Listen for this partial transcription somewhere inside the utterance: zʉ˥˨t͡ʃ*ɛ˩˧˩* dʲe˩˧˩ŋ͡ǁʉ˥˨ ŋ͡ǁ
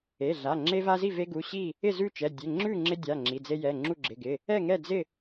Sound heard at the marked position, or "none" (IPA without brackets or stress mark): ɛ˩˧˩